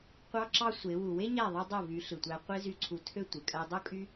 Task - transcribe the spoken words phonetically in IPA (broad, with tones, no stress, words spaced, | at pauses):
qʷɑ˦ǁɑ˦sʷe˨˦ wu˨we˦ɲæ˦˨ðˤɯ˧ dˤo˦˨vy˨˦ ɬɯ˨tʷæ˧ qʷe˦zy˦˨ǀʰu˧tʰø˦ tʷɯ˨kʼæ˦ dˤo˦kʼy˦